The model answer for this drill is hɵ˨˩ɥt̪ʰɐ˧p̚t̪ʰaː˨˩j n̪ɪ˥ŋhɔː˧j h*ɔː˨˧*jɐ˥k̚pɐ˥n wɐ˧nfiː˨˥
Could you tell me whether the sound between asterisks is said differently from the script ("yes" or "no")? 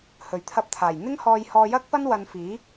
yes